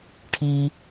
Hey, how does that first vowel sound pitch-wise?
low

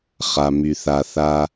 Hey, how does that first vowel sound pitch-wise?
low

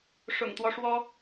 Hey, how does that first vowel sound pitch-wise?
low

